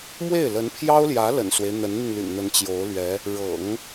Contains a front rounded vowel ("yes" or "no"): yes